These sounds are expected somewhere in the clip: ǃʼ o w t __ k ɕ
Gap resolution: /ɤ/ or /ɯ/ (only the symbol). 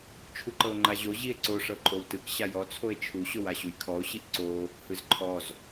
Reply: ɯ